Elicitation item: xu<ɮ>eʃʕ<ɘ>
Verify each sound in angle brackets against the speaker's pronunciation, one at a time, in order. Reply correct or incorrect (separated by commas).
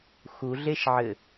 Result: correct, correct